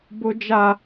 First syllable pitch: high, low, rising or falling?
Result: high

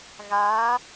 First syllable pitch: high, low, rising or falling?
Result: rising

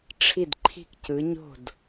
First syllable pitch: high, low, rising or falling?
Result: falling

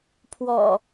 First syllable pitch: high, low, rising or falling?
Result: low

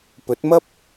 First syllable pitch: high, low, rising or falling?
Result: rising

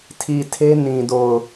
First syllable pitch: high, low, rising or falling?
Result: low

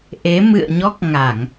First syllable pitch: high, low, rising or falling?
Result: rising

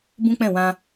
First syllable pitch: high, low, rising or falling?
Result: high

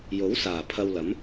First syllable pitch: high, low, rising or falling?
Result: rising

